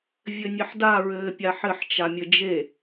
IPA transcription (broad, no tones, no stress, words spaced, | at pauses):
vʲɘnʲɘħda ɹɘːpʲaħɘħ t͡ʃamʲɘd͡ʒe